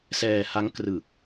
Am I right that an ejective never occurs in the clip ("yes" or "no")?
yes